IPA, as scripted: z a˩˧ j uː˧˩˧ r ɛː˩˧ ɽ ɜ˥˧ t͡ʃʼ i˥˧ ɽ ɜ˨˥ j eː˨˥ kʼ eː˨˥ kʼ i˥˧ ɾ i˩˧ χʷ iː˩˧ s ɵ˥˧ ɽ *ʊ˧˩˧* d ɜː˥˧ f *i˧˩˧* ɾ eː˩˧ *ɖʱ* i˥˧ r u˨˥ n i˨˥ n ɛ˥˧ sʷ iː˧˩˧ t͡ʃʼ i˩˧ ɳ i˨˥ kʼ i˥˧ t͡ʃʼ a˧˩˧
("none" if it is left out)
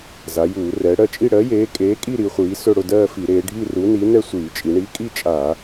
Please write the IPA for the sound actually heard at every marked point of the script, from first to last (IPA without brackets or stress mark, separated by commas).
ʊ˥˧, i˧˩˧, ɖʱ